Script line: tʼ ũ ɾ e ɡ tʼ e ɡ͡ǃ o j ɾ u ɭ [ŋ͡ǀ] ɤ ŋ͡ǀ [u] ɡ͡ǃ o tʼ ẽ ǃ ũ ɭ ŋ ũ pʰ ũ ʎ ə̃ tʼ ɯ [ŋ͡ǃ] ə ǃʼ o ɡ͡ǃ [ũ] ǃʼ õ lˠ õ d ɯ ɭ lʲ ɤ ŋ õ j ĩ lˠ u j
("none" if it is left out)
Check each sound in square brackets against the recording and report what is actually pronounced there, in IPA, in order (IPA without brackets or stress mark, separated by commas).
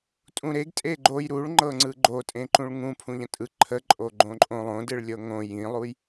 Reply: ŋ͡ǃ, ɯ, ǃʰ, õ